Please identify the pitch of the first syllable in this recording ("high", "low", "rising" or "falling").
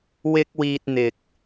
high